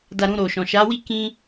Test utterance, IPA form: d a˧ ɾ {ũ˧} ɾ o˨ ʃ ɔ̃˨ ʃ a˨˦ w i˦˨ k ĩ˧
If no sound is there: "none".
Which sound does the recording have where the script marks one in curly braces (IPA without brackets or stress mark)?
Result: ũ˧